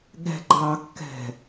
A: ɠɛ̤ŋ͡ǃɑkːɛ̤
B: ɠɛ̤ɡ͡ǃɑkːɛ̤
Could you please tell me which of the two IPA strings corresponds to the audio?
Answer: B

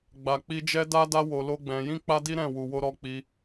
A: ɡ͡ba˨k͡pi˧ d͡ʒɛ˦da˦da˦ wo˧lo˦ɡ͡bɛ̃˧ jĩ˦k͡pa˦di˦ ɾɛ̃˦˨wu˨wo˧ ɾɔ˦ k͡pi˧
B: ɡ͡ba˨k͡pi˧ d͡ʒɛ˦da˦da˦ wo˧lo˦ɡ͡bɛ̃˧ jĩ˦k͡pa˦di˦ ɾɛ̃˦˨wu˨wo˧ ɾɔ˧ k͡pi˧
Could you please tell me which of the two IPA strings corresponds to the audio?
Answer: B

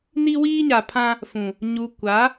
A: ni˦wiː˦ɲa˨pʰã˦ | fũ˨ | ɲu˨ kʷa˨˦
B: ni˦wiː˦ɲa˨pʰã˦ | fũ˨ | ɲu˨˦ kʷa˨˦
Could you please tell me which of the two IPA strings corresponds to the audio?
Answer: A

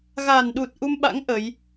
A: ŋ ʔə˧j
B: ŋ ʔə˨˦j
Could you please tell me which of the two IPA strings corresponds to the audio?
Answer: B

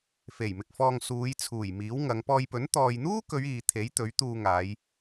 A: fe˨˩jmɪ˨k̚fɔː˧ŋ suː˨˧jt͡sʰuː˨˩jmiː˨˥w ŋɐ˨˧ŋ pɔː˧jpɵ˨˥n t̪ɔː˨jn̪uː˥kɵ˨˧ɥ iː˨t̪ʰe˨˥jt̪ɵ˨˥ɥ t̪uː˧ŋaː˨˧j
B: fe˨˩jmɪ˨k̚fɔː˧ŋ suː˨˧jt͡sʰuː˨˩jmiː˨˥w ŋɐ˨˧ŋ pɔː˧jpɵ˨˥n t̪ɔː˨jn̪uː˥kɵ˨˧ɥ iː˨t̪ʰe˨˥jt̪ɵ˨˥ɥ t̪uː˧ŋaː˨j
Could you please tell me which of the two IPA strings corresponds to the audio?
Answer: A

